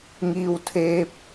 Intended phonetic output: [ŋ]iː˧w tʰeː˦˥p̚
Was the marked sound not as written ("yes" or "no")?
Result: no